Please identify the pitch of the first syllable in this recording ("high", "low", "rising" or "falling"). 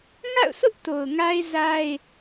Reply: falling